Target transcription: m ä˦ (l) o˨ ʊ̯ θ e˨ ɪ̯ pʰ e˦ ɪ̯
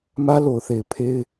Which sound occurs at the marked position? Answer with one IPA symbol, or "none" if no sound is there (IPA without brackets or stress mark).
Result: l